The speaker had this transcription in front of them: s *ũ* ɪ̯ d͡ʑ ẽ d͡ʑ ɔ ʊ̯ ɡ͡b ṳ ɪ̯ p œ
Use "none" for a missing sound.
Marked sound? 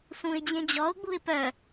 ũ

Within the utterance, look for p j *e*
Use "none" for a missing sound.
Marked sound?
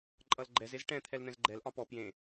ẽ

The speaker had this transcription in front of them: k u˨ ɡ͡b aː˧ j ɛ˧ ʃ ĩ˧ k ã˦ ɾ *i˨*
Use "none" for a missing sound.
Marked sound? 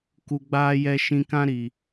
i˨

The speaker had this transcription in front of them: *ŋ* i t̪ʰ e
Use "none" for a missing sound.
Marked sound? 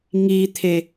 ŋ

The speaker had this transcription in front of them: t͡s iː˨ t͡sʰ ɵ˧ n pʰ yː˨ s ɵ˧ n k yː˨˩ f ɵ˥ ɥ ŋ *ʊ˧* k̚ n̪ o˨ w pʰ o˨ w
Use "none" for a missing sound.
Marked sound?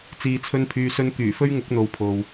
ʊ˨˥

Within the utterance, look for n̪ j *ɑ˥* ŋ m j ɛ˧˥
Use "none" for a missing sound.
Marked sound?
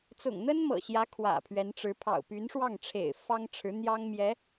ɑ˥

